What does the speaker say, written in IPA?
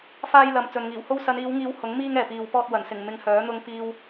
f aː˧ j l ɐ˨ m t͡s ɵ˨ n ŋ iː˨˩ w h o˥ w s ɐ˨˧ n iː˨˧ w ŋ iː˨˧ w h ʊ˨˥ ŋ m iː˧ ŋ ɛː˨ p iː˨ w p ɔː˧ t̚ w ɐ˨˩ n s ɪ˨˩ ŋ m ɪ˨ ŋ h œː˨˥ n̪ ʊ˧ ŋ p iː˧ w

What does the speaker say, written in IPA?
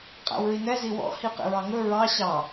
qʼ æ̰ w ɹ i n ɛ z i w ɔ̰ h i q ḛ ɹ ɑ ŋ ɵ ɹ ɑ ɕ ɑ

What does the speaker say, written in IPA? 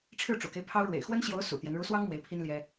ʈ͡ʂʰ ɻ̩˥˩ ʈ͡ʂ ṵ˨˩ k e˦ ɪ̯ pʰ ɑ˥ ʊ̯ ɻ w ḛ˨˩ ɪ̯ x w ə˥ n ɕ j o˧˥ ʊ̯ s ṵ˨˩ t̪ j ɛ˦ n ɻ u˧˥ s w ɑ˥ ŋ m w e˧˥ ɪ̯ pʰ i˥ n l j ɛ˥

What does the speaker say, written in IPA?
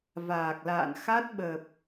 v aː˨˩ k̚ l a̰ː˧˨ n x a˦˥ t̚ ɓ ə˨˩ p̚

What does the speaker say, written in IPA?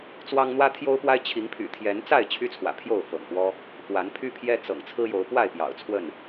t͡s w ɑ˦ ŋ n̪ w ä˦ t̪ʰ j o˦ ʊ̯ p w a˦ ɪ̯ t͡ɕʰ i˨˦ ŋ pʰ y̰˨˩ t̪ʰ j ɛ˨˦ n t͡s a˥˨ ɪ̯ t͡ɕʰ y˦ t͡sʰ w ä̰˨˩ pʰ j o˥˨ ʊ̯ f ɤ̰˨˩ ŋ p w ɔ˦ | x w a˨˦ n pʰ y˦ pʰ j ɛ˦ t͡s ɤ̰˨˩ ŋ t͡sʰ ɹ̩˦ j o˨˦ ʊ̯ p w a˥˨ ɪ̯ p j ɑ̰˨˩ ʊ̯ t͡sʰ w ə˥˨ n

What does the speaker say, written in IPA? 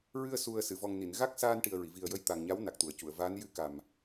ɹ ɨ˧ ə̯ s u˨˩ ə̯ s ɨ˨˩˨ v ɔ˨˩ ŋ n i˨˩˨ n ɣ a˦˥ k̚ s aː˧ n ʈ i˨˩ ə̯ ɹ i˨˩˨ v i˨˩ ə̯ j ə˧ j t̪ a˨˩ ŋ ɲ a˧˥ w n a˨˩ k̚ t̪ u˨˩˨ ə̯ c u˨˩˨ ə̯ v aː˧˥ n j ɨ˧˥ k a˨˩ m

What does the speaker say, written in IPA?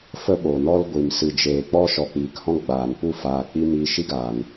f ə˧ ɓ o˨ n ɔ˧ l ɡʷ i˨ m s ɨ˨ d͡ʒ eː˨ k͡p ɔ˦ ʃ ɔ˨ k͡p iː˨ k h ɔ̃˦ ɡ͡b aː˨ n p u˦˨ f aː˨ k͡p i˧ m iː˧ ʃ i˦ ɡ aː˨ n

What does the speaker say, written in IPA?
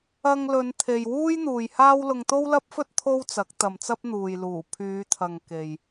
ɐ˧ ŋ l ɵ˨˧ n t̪ʰ e˨ j w uː˥ j n̪ uː˨ j h aː˥ w l ʊ˧ ŋ t̪ o˥ w l ɐ˥ p̚ f ɵ˥ t̚ t̪ʰ o˥ w t͡s ɐ˨˥ k̚ t̪ ɐ˨ m t͡s ɐ˥ p̚ n̪ uː˨ j l uː˨˩ pʰ yː˨˧ t̪ʰ ɐ˨ ŋ k e˨ j

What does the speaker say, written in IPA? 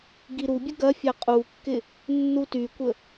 ɡ i ɾ u bʲ ə ɡ ɐ fʲ a qʼ u kː ɪ | nː u t y kʷ ə

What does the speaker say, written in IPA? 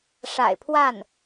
ʂ a̰˨˩ ɪ̯ pʰ w a˥˩ n

